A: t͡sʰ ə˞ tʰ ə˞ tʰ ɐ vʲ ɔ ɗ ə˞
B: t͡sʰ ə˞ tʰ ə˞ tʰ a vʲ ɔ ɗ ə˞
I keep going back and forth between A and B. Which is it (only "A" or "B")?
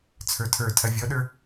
A